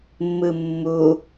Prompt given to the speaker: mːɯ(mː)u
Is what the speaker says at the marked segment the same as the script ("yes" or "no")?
yes